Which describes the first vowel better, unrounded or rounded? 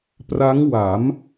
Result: unrounded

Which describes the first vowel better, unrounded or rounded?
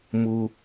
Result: rounded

